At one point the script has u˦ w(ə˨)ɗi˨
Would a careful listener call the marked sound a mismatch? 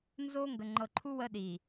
yes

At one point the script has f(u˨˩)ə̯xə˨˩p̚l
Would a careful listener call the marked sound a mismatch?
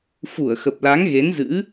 yes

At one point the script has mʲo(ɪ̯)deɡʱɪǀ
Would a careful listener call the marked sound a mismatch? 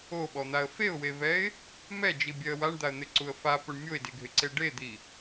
no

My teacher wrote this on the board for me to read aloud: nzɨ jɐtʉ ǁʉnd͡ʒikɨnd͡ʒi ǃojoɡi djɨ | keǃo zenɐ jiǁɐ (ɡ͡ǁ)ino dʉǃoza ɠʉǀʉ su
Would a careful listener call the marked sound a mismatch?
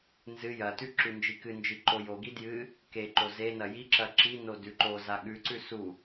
yes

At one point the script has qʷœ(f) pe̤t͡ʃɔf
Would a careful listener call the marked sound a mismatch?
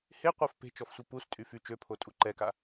no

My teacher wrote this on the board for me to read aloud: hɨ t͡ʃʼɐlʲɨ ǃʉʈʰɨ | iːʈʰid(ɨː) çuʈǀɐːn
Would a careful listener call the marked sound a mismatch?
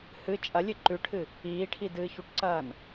no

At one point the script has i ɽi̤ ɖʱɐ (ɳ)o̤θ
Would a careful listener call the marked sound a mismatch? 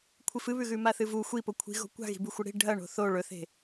no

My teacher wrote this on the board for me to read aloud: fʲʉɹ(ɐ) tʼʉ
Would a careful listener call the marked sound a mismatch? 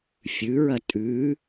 no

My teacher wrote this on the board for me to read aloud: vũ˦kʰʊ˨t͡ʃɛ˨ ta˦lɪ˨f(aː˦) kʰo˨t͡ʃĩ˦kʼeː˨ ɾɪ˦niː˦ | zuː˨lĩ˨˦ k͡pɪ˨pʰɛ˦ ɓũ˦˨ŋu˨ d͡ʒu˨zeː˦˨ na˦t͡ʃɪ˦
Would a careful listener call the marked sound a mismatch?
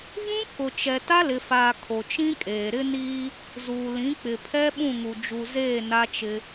yes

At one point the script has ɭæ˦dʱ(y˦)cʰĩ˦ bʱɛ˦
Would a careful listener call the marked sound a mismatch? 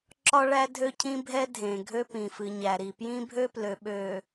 yes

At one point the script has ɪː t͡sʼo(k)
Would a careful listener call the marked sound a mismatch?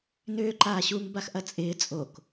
no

